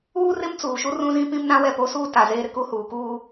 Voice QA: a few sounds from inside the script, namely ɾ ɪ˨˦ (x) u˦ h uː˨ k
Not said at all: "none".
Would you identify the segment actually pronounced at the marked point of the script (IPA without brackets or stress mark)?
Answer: k